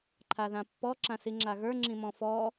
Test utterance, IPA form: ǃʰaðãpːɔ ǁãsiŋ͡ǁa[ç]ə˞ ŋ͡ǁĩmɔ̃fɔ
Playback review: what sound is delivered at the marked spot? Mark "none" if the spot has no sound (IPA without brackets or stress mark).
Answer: ɣ